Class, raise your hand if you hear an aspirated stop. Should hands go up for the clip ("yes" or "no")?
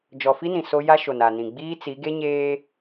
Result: no